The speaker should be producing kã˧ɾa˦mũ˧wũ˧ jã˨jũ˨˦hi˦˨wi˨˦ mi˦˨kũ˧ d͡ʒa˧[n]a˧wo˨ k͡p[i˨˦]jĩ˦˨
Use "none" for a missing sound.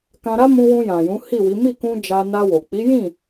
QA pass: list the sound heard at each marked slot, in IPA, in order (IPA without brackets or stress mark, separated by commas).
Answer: n, i˨˦